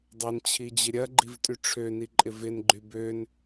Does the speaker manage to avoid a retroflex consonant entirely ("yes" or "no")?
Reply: no